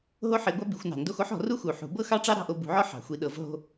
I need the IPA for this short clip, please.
ɦ o˥ ħ i˨˦ ɡʷ a˥ b i˨˦ xʷ n ɑ̤˨˩˦ n d o˥ x o˥ ħ ɔ̤˨˩˦ r u˥ x u˨˩˦ ħ ṳ˨˩˦ b ɤ˥ x ɑ˥ ʈ͡ʂ ɑ˥ ɾ ɑ̤˥ ʔ o˨˦ b ṳ˨˩˦ ʕ ɔ˥ ħ ɑ̤˨˩˦ xʷ i˨˦ ɗ ɤ˨˩˦ v ɦ o̤˥

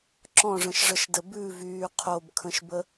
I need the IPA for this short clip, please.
ǁ ɔ̃ ʐ ə̃ ʃ ʐ ə ʃ d ə b ʉ v yː qʰ o b kʰ ə̃ ʃ b ə

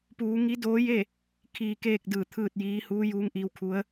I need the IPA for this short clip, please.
p uː˩˧ ŋ i˧˥ d oː˧˥ j e˥˨ | kʰ iː˩ k eː˥˨ k̚ d ɯː˧˩ t̪ʰ ɯː˥˨ t̚ j iː˧˥ h uː˧˥ j uː˧˥ ŋ ʔ iː˧ w kʰ u˧˥ ə̯

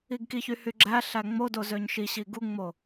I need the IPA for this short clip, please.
i ɡ k i ç y h y ɡ͡ǁ æ ɬ æ ŋ͡m o d o z ø ɲ ʃ i ɕ i ɡ u ŋ͡m o

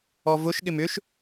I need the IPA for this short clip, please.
ɔ v ʊ ʃ ɠ ɪ m ʏ ʃ

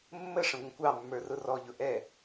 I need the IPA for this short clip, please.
mː ə ʂ ə̃ ɡʷ ə̃ kʷ ɑ mː ə˞ r ʊ r ɔ ʎ ʊ ʔ ɛ

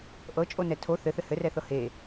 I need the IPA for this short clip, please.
ʔ ɤ t͡ʃʼ o n ɛ tʰ o θ ɘ θ ɘ h ɘ r ɛ θ ɤ h e

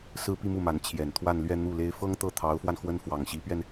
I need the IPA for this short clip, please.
s ɹ̩˥ p i˥˧ m u˥˩ m a˧˥ n t͡ɕʰ j ɛ˨˩ n t̪ʰ w a˥˧ n l ɥ ɛ˥˧ n̪ u˥˩ l e˥ ɪ̯ f ɤ˥ ŋ t̪ ɤ˥˩ t̪ʰ ɑ˧˥ ʊ̯ f w a˧ n x w ə˥ n f w ɑ˨˩ ŋ ɕ i˧˥ p ɥ ɛ˧ n

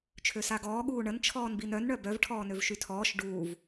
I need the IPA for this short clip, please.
t͡ʃʰ ø s a ɡ ɔː ɠ uː ɳ ə n t͡ʃʰ ɔː n b i n œ n ɳ œ b œ v ʈʰ ɔː n ø v ʃ y tʰ ɔː ʃ ɖ uː v

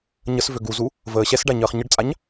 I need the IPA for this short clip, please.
ɲ ə s v ø ɡ u z u | v əː ɕ ɛ s ɖ a ɲ əː χ ɲ ə ɖ t͡sʼ a ɲ

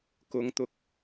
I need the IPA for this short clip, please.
k ʊ˨ ŋ t̪ ʊ˨˥ k̚

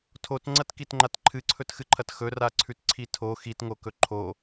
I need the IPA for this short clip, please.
tʰ o t ŋ͡ǀ ɐ t k i t ŋ͡ǃ a t ǃʰ ɨ ǀʰ ɵ t x ɨ ǃʰ ɐ t x ɵ r a ǀʰ ʉ t ǀʰ i tʰ o x i t ŋ o k ɵ ǃʰ o

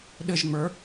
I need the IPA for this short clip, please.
ɗ ɘ ʒ ŋ͡m ə˞

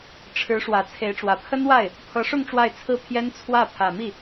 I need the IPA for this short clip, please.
ʈ͡ʂʰ ɻ̩˧˥ ʂ w ä˨˩ t͡sʰ e˧˥ ɪ̯ ʈ͡ʂ w ä˨˩ pʰ ə˥ n w a˥˩ ɪ̯ | pʰ ɤ˧˥ ʂ ʊ˥˧ ŋ ʈ͡ʂ w a˥˧ ɪ̯ t͡sʰ ɹ̩˥˩ pʰ j ɛ˥ n t͡sʰ w ä˥˩ pʰ ä˨˩ m i˥˩

